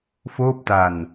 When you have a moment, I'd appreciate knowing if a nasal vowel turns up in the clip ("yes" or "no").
no